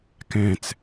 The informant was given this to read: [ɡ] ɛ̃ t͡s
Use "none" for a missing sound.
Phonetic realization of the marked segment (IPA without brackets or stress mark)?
k